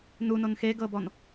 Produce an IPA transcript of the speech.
n u n o n x e ɡ ɤ b ɔ n

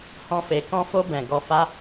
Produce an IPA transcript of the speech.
h ɔ̃˧ f e˨ k ɔ̃˧ f o˧ b ɛ̃˨ ɡ ɔ˧ f a˧

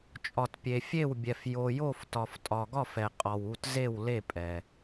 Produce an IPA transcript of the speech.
t͡ʃʼ ɒ˨ t pʲ e˨ fʲ e˦˨ w bʲ ɛ˨ f j o˨ j o˦˨ f t ɒ˨ f tʼ ɒ˨ ɡ ɒ˦˨ f ɛ˨ qʼ ɒ˨ w u˦˨ t z e˦˨ w l e˦˨ pʼ ɛ˨

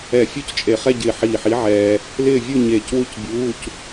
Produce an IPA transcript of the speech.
ɛ˧˩ fʲ u˥˧ c t͡ʃʼ e˧˩ χ ɛ˥˧ ɟ ɪː˧˩ ħ iː˧˩ ħ i˨˥ ʕ ɛː˧ | l ɪː˥˧ vʲ u˥˧ ɲ eː˧˩ c w u˥˧ c bʲ uː˧˥˧ c

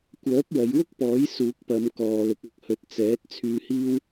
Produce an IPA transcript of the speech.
kʷ œː˨˥ p̚ w ɐ˨˧ j w ʊ˥ k̚ p ɔː˨˥ j s uː˨˥ k̚ p ɐ˨˧ m k ɔː˨ l ʊ˨˥ k̚ ɐ˧ k̚ h ɵ˨˥ t̚ t͡s ɛː˨˥ t̚ t͡sʰ yː˧ h iː˥ w

